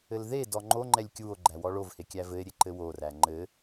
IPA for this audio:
ɘ l ð e d ɔ ŋ͡ǃ o ŋ͡ǃ ɛ lʲ kʲ u o̯ ɡ͡ǃ æ w ɔ ɭ o v h e kʲ æ v ɘ e̯ ɾʲ e ǃ ɘ w o r æ ŋ͡ǃ ɘ

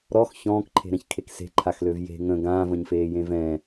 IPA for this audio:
ɾ ɔ x ç ɔ̃ː k ǃʰ e̤ ɾ ɛ̃ ç kʰ e k s e̤ ǃʰ a x l ø v j e̤ ŋ ə̃ ɡ ãː v ə̃ ɲ f eː j ẽ v ɛ̃

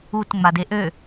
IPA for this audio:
u t ŋ͡m a d e ʔ ø

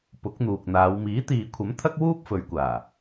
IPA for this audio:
p ʊ˨˥ k̚ n̪ uː˨ k̚ n̪ aː˨˧ w m iː˨˥ t̪ iː˨ kʷʰ ɐ˨˥ m t̪ʰ ɐ˥ k̚ w uː˥ p̚ f ɵ˨˧ ɥ kʷ aː˨˩

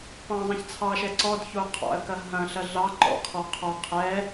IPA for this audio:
p ɑ̃ zˤ ɐ̃ ç t͡sʰ ɑ ʃ ɛ ǀ ɔ d ç o qʰ ɑ̰ ə̯ k ɐ ɦ ɐ̃ ɬ ɐ ɮ ɑ ǃ ɔ̰ kʰ ɔ qʰ ɔ qʰ ɛ

